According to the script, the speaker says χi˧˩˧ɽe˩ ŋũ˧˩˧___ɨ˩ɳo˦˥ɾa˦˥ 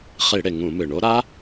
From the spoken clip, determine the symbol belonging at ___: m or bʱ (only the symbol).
m